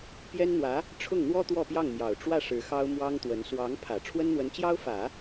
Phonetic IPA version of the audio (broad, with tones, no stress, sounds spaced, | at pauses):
p j ɛ˥ n n̪ w ä˧˥ | ʈ͡ʂʰ ʊ˥˩ ŋ n̪ w ɔ˥ t̪ w ɔ˥˧ p j ɑ˥˩ ŋ m j ɑ˨˩ ʊ̯ ʈ͡ʂ w ä˥˩ ʂ ɻ̩˧˥ x ɑ˥ ʊ̯ m w ɑ˥ ŋ t̪ w ə˧˥ n s w ɑ˧˥ ŋ pʰ ä˨˩ ʈ͡ʂʰ w ə˥ n n̪ w ə˧˥ n t͡ɕ j ɑ˥ ʊ̯ f ä˨˩˦